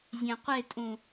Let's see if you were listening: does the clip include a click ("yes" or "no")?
no